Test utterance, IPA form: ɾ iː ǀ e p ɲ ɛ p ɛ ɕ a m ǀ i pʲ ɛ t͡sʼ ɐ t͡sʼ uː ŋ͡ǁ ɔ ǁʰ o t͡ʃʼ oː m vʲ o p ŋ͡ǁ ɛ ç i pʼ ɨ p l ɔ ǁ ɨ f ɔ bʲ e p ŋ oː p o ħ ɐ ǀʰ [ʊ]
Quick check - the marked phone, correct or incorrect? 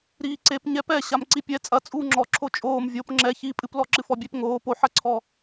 incorrect